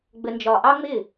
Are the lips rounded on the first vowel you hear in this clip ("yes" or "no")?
no